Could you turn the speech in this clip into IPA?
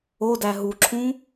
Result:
odæ ɦuǁʰũ

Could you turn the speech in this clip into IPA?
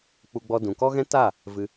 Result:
k͡pu˧ɡ͡bɔ˧ dũ˨kɔ˦ɣɛ̃˦ ta˦˨ | vɨ˧

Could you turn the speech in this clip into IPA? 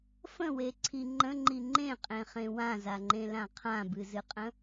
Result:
fə̃weǀʰi ŋ͡ǃə̃ŋ͡ǃi ŋ͡ǃẽqʼẽχẽ wãzaŋ͡ǃẽlã qʰãbɨzɨqʼə̃

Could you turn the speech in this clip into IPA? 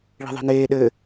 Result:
ɭi̤ðˤi̤neː ɗɘ

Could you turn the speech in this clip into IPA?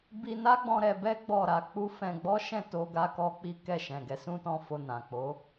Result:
bi˧na˦ɡ͡bɔ̃˧ ɾɛ˧bɛ˦ ɡ͡bɔ˦˨ɾa˨˦k͡pu˦ fɛ̃˧ɡ͡bɔ˦ʃɛ̃˦˨ to˧ɡa˧kɔ˧ k͡pi˦kɛ˦˨ʃɛ̃˨ɡɛ˨˦ sũ˧tɔ̃˧ fo˧nã˨ k͡po˨˦

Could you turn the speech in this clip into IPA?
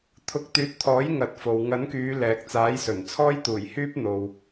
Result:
t̪ʰʊ˨˥k̚t̪yː˨˥t̚t̪ʰɔː˨˥j ŋɐ˨˥t̚fo˨w ŋɐ˨˥nkyː˨˧ lɛː˨k̚t͡saː˨˥jsɵ˨˩n t͡sʰɔː˥jt̪uː˨˩j hyː˥p̚n̪o˨w

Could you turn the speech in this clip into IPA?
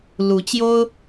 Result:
lu˧˥t͡ɕjo˥ʊ̯

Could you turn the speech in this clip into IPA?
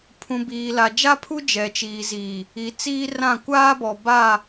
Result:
pʰũ˨biː˨la˨ d͡ʒa˦pʰu˦ d͡ʒɛ˨t͡ʃiː˨ziː˨ | i˨˦t͡siː˦rã˦˨ kʷaː˦bɔ˨ ba˦˨

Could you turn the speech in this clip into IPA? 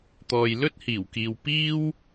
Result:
t̪ɔː˨jlɵ˥t̚hiː˨˩wkiː˨w piː˥w

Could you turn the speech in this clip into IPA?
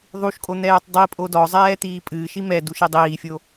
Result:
ðˤuʃkʼo n̪ɛːtˤdˤipʼo dɔzˤɛː t̪iːpʼɨːʃi mɛdu ʃidˤiːfʲo

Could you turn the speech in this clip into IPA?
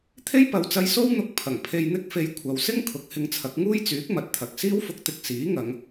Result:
t̪ʰe˥jpɐ˨˧wt͡sɐ˧j so˥wn̪ʊ˧k̚ pʰɐ˨˩ŋpʰe˧jn̪ɪ˥k̚fe˧j kʷʰɐ˨wsɪ˥ŋ kʰʊ˨˥k̚hɪ˧ŋt͡sʰɐ˨˥k̚ ŋuː˥jt͡syː˨˥k̚mɐ˨t̚t̪ʰɐ˨k̚ siː˥wfʊ˧k̚t̪ɪ˧k̚ siː˨˥ŋɐ˨˧ŋ

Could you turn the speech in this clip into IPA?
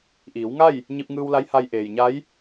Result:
ʔiː˩˧wŋa˥˨j | ɲi˧p̚ŋɯː˧wla˧˥j ha˧j ʔeː˩jɲa˧˥j

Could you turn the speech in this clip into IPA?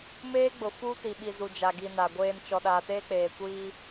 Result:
meː˦ɡ͡bʊ˨ fu˦ti˨ɓi˨ zu˨d͡ʒa˨ɡi˨ na˨ɡʷeː˦n t͡ʃɔ˨ɗaː˨teː˦k͡peː˨ kʷiː˦

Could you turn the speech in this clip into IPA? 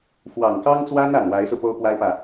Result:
fwɑ˨˩ŋkɑ˥ŋt͡swa˥n a˨˩nwa˧˥ɪ̯sɹ̩˧ po˥ʊ̯pwa˥ɪ̯pä˨

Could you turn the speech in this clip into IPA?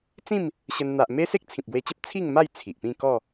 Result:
t͡sĩ˥˧m | ɕə˧n n̪a˨ʔme˦ se˦k̚t͡sʰĩ˨p̚ɡwe˧t͡ɕə˦p̚ t͡sʰi˥˧ŋma˥˧j t͡sʰi˨ʔpĩ˥˧ kɔ˥˧

